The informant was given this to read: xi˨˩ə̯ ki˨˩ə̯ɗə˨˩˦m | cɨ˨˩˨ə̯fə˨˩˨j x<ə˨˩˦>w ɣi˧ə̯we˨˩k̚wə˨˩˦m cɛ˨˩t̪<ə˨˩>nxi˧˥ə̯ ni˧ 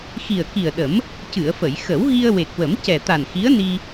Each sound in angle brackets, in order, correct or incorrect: correct, incorrect: a˨˩

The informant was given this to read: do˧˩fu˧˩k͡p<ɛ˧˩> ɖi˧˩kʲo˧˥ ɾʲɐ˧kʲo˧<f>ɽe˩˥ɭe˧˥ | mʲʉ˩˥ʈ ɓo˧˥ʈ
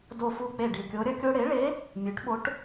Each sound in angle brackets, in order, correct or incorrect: incorrect: e˧˩, incorrect: none

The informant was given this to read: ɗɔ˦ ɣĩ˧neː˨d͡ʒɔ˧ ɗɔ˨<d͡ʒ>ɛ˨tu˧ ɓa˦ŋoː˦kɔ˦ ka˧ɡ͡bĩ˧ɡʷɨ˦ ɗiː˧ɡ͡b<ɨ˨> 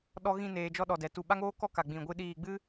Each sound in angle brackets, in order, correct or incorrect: incorrect: d, incorrect: ɨ˦

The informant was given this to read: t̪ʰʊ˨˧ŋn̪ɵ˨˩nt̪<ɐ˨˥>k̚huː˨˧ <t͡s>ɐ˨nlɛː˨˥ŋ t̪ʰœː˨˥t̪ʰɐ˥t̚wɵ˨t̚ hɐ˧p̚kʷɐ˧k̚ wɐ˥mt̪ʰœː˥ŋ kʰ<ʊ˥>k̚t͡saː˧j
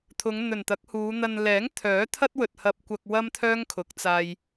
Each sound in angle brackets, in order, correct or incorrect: correct, incorrect: n̪, incorrect: ʊ˨˥

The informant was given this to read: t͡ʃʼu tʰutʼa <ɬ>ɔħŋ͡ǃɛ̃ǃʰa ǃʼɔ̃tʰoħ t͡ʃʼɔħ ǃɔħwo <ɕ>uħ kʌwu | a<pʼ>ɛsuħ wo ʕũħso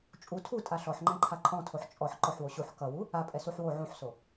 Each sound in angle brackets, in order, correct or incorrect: correct, correct, correct

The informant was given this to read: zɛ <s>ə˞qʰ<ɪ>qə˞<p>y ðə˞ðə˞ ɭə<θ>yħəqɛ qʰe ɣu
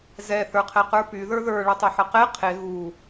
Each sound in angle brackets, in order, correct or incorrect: incorrect: θ, incorrect: ɛ, correct, incorrect: tˤ

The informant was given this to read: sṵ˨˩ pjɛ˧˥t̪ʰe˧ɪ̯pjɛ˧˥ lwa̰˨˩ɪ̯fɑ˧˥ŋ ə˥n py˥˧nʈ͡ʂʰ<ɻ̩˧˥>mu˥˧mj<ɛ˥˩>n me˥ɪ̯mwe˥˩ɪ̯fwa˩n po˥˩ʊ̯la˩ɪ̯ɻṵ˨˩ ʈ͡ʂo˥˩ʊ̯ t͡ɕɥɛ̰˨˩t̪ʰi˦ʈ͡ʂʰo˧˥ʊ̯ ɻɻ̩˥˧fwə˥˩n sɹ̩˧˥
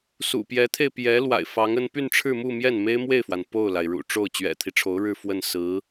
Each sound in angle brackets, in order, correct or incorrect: incorrect: ɻ̩˥˧, correct

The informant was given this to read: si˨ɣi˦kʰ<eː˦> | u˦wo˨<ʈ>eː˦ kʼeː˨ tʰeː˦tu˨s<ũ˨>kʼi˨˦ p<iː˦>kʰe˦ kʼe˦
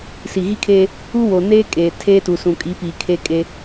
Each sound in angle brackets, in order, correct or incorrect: correct, incorrect: n, correct, incorrect: iː˨

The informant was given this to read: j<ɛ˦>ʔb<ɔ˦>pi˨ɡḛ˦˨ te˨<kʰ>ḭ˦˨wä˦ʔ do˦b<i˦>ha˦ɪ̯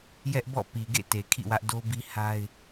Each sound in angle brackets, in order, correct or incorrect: correct, incorrect: ɔ̰˦˨, correct, correct

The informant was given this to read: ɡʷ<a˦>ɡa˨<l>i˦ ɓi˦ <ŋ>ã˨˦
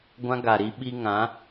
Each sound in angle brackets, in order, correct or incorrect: incorrect: ã˦, incorrect: ɾ, correct

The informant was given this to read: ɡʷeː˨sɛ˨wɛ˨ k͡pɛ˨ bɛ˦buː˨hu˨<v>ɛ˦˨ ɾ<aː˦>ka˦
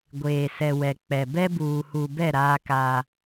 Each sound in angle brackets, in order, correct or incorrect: incorrect: b, correct

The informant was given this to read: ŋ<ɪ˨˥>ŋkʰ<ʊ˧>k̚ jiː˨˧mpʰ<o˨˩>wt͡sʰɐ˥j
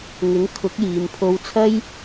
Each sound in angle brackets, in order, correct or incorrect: correct, incorrect: ʊ˨˥, incorrect: o˧

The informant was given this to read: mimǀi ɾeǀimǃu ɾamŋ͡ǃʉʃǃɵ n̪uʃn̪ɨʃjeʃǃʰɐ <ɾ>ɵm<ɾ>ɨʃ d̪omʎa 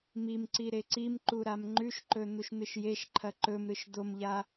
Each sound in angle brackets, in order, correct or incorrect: incorrect: ǃ, correct

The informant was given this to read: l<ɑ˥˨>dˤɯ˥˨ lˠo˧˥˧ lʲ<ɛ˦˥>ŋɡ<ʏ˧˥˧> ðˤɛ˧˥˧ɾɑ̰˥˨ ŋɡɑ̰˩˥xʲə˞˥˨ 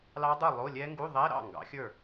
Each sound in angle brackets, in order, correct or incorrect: incorrect: ɑ˦˥, correct, incorrect: u˧˥˧

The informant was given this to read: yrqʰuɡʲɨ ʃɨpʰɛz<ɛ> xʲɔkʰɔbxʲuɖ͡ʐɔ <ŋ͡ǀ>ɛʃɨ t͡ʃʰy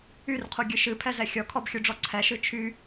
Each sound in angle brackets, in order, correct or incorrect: correct, incorrect: ǀʰ

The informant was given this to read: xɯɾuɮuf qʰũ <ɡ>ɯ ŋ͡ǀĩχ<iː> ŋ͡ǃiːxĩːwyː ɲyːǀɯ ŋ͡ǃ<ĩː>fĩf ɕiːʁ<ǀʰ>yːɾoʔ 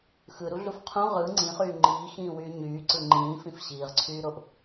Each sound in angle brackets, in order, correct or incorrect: incorrect: ʁ, incorrect: yː, correct, correct

